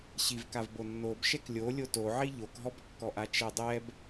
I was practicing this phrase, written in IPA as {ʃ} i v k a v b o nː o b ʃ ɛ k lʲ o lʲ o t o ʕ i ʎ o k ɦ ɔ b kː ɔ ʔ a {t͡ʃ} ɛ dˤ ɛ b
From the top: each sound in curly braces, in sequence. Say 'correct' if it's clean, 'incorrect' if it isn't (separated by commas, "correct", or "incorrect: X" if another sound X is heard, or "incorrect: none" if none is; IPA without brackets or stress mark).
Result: incorrect: ɕ, correct